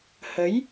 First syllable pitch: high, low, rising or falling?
rising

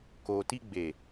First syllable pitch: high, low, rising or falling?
low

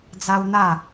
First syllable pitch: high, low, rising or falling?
high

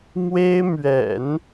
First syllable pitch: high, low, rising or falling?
high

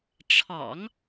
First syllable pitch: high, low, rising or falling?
low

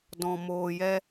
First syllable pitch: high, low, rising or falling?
low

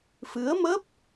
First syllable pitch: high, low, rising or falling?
rising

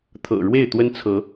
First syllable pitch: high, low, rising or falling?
low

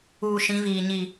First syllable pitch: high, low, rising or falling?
low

